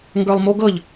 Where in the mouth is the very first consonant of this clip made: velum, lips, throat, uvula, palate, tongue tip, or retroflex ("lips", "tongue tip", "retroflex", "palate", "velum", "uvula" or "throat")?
velum